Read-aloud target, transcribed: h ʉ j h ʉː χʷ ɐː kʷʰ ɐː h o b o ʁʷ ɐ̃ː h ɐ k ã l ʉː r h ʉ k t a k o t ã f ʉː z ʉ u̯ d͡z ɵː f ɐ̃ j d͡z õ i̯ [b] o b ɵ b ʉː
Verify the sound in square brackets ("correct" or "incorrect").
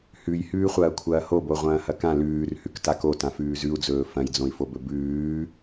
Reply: incorrect